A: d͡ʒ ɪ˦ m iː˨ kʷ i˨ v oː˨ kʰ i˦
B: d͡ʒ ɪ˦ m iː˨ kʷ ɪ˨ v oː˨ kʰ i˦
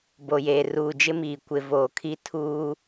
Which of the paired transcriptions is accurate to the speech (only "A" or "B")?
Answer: B